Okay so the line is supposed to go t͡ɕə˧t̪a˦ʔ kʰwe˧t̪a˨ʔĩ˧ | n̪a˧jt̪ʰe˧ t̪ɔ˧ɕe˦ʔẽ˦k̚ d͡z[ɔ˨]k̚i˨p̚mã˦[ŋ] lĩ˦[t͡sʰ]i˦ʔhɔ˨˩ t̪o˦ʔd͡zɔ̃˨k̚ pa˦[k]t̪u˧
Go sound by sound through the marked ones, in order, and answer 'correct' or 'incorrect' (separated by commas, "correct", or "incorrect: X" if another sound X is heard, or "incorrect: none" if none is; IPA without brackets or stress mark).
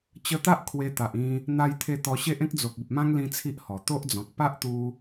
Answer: incorrect: o˨, correct, correct, incorrect: ʔ